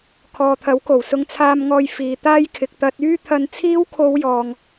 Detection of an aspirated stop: present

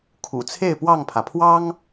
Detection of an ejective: absent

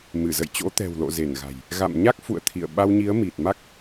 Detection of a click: absent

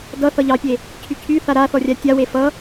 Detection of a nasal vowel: absent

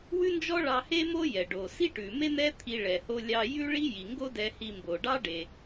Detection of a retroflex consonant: present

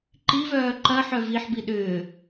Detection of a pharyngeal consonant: present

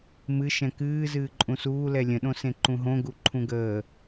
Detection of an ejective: present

